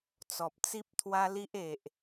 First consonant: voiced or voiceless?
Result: voiceless